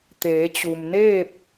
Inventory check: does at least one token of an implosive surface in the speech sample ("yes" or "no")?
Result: no